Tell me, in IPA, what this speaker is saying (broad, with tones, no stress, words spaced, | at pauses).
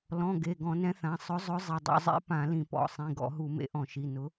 lɔ̃˩˧˩ ɡe˩˧˩ɡɔ̃˧˩˧nɛ̃˨˥θã˩˧˩ sˤʊ˨˥zˤʊ˨˥ zˤɪ˩˧˩dˤṵ˧˩˧zˤḛ˨˥ pã˧˩˧lĩ˧˩˧pɔ̰˩˧˩ sˤĩ˩˧˩ɡɔ̰˧˩˧ɦu˧˩˧mḛ˨˥ ʔɔ̃˧˩˧ʃi˩˧˩ nʊ˨˥